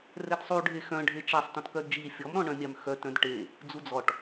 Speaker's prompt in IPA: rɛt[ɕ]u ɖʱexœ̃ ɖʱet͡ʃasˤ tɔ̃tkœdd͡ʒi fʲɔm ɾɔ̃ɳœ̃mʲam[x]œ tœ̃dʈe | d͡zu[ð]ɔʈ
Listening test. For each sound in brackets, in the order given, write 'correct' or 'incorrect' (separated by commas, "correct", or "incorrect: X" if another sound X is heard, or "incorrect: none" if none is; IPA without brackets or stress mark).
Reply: incorrect: sˤ, correct, incorrect: d͡z